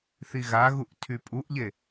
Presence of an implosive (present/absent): absent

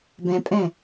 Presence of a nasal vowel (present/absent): present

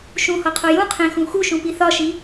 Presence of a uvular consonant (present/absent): present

